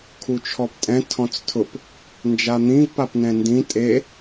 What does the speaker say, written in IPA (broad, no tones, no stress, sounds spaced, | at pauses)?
kʰ u t͡ʃʰ ɔ p tʼ ɛ̃ tʰ ɔ̃ t͡s tʰ ʊ p | n d͡ʒ a n̪ ĩ v p a p n ɛ̃ n d ĩ tʼ e